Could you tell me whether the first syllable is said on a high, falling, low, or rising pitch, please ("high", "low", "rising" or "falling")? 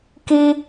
high